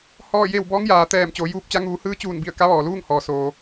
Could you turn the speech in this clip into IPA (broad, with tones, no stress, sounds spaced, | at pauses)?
h ɔː˥˨ j e˥˨ w b ɔː˧˥ ŋ j aː˩ t̪ ɛː˧˩ m t͡ɕ oː˩˧ j uː˧˥ p̚ t͡ɕ a˧˥ ŋ uː˩˧ h ɯː˧˥ t͡ɕ uː˧˩ n b i˧˩ ə̯ k a˧˥ ʋ ɔː˩ l uː˥˨ ŋ h ɔː˩ s oː˩